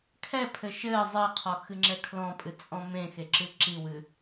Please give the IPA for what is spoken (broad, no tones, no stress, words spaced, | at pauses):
kʰɛpʰɘ ʃɘː zˤɘːqʰɔ xɨŋ͡ǁɛkʰlɔ̃pʼɨ t͡sʼɔ̃mẽxe ǁɨǁiwɨ